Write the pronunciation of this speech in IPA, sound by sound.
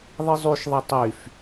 ðˤ i zˤ y ʃ ðˤ ɛ tˤ y f

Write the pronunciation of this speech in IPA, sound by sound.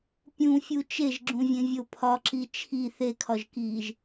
pʲ ũ fʲ u t͡ʃ e ʒ ɡ͡ǁ ũ vʲ ẽ vʲ o pʰ ɒ ǁ i t͡ʃʰ i θ e kʰ ɒ ʒ k iː ʒ

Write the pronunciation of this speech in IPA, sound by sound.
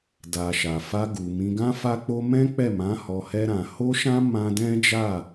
d a˨ ʃ a˨ f a˧ ɡ u˨ m ĩ˧ ɡ ã˦ f a˦ k͡p o˦ m ɛ̃˦ k͡p ɛ˦˨ m ã˨˦ h ɔ˧ h ɛ˦ ɾ ã˧ h o˦ ʃ ã˦ m ã˦ d ɛ̃˦ d͡ʒ a˦˨

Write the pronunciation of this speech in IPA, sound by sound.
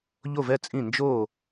ʎ o˥˨ v ɛ˥˨ t͡sʼ ĩ˥˨ n d͡ʒ o˥˨

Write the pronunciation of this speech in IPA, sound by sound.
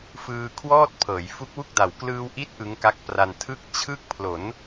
f ɯː˧ kʰ w ɔː˥˩ t̚ pʰ ɤː˩˦ j f u˦˥ k̚ w u˥˩ k̚ d a˨˩ w k l ɯː˧ w ʔ i˦˥ t̚ ʔ ɯ˦˥ ŋ k a˦˥ k̚ p r a˧ n tʰ ɯ˥˩ k̚ t͡ɕʰ ɯ˦˥ k̚ pʰ l o˩˦ n

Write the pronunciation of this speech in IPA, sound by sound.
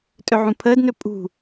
tʼ ɵ ʕ ũ pʰ əː d n ɵ pʼ ṳ

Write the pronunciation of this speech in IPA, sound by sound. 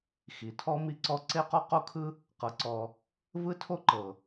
x i˩ tʰ ɔ˦ m i˦ ǀ ɔ˦ ǀ e˥ q ɔ˥ q o˥ kʰ ɯ˥ | q ɤ˨ ǀ ɔ˨ | v ɯ˦ tʰ o˦ ǃ ɤ˩

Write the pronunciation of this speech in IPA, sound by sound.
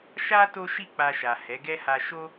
ʃ a˦ t o˦ ʃ i˦˨ k͡p a˧ ʃ a˨ h ɛ˨˦ ɡ ɛ˦ h a˧ ʃ o˦

